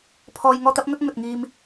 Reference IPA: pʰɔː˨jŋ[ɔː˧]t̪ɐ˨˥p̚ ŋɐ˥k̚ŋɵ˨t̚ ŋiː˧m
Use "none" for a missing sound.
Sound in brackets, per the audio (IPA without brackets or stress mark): ɔː˧